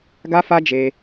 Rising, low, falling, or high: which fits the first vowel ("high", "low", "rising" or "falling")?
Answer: high